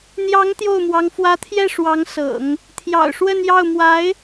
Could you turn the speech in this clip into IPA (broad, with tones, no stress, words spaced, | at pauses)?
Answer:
n̪jɑ˧˥ŋ t̪jo˥˩ʊ̯mwɑ˧˥ŋ fwä˧˥t̪ʰjɛ˥˩ ʂwɑ˧˥ŋsɤ̰˨˩˦ŋ | t̪ʰjɑ̰˨˩ʊ̯ʂwə˥˧njɑ˥˩ʊ̯ mwa˧˥ɪ̯